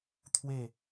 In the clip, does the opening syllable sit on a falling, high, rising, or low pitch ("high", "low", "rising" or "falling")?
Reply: falling